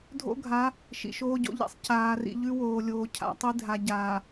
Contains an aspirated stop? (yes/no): yes